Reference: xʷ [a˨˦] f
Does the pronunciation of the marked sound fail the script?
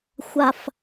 yes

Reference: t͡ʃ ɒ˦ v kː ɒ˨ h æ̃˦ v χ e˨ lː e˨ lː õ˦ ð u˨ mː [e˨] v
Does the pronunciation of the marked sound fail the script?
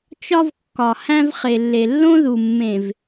yes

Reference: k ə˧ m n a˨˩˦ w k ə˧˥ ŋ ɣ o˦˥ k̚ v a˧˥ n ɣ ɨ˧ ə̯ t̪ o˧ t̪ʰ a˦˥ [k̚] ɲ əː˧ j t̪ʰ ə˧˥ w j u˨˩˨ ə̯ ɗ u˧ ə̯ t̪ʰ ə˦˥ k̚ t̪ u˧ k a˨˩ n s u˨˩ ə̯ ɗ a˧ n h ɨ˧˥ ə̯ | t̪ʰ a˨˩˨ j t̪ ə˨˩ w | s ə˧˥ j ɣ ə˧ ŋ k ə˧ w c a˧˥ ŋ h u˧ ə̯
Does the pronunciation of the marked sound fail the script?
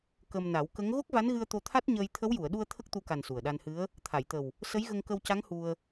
yes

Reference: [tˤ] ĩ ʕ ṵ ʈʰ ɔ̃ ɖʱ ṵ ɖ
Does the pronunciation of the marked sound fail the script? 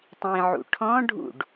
no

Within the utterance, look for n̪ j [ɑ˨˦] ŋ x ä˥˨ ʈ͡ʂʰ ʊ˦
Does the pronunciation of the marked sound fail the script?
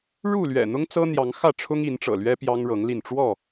no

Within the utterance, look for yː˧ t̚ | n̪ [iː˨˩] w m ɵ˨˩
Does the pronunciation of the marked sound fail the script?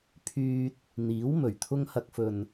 yes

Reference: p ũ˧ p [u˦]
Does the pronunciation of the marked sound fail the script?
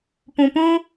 yes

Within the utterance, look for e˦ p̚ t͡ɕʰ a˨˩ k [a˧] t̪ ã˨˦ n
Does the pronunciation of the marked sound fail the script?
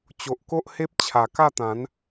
yes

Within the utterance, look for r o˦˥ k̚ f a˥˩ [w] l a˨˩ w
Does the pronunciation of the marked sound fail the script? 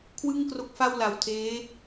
no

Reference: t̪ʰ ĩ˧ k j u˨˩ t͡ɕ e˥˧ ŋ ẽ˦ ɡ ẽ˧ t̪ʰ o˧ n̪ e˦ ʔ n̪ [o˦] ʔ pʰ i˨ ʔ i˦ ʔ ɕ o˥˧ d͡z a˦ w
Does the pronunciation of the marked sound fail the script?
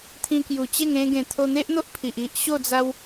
no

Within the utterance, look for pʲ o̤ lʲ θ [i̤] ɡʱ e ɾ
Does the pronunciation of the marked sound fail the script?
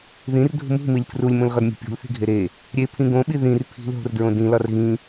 no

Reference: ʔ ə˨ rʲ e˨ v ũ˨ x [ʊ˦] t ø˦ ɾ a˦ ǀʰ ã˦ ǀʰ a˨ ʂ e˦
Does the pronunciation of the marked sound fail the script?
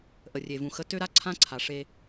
yes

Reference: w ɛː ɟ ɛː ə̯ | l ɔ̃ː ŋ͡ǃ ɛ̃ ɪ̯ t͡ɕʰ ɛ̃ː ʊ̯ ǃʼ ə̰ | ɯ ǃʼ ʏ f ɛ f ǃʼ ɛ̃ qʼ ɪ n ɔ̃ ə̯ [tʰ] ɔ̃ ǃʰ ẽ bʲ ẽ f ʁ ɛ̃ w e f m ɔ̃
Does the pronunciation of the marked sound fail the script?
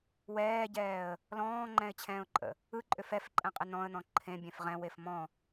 yes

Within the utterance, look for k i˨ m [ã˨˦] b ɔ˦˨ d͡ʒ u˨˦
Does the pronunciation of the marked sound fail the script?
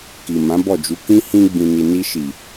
no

